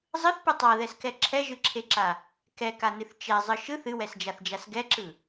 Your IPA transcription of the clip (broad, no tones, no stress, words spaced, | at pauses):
zˤɯθpɯ tˤaðɛskɛ ǁʰɛʒɯǁʰeǁa | kɛkanɨθ t͡ʃɛzˤɯ ʃɯθ ɨwɛsd͡ʒaθd͡ʒas ɡɛǁɯ